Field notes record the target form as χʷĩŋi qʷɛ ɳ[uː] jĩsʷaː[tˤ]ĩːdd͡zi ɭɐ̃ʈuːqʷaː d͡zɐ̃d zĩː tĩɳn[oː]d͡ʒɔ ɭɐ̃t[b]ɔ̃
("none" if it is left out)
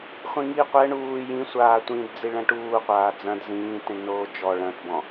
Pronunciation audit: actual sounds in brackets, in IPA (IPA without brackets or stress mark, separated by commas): uː, tʷ, oː, b